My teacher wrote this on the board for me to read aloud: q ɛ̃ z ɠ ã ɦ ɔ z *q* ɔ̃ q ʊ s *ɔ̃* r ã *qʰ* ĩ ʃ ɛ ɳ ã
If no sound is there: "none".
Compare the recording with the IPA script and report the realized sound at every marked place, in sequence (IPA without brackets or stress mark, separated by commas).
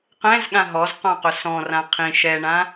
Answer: q, ɔ̃, qʰ